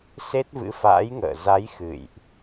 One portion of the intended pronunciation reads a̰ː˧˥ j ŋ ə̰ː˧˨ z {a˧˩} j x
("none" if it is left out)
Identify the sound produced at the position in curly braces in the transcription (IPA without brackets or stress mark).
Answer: a˨˦